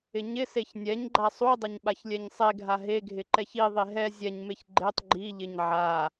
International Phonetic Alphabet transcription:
ɪ ɲ ɪ s e ç nʲ ɛ ɲ ɡ͡ǃ a sˤ u dˤ ɪ ɲ ɓ a ç lʲ ɛ ɲ sˤ e ɡʱ a ɦ e ɡʱ ɪ ǃ ɛ ç i ðˤ e ɦ ɛ zʲ ɛ ɲ m e ç ɡ͡ǃ e tˤ ɡ͡ǃ i ʎ ɪ ɲ ʕ a

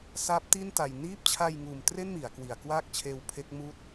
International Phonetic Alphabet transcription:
s aː˦˥ p̚ t i˥˩ n t a˧ j n iː˦˥ p̚ t͡ɕʰ a˧ j ŋ uː˨˩ m t r e˥˩ n m i˩˦ a̯ k w i˨˩ a̯ k w aː˥˩ k̚ t͡ɕʰ eː˧ w pʰ e˦˥ k̚ m uː˥˩ t̚

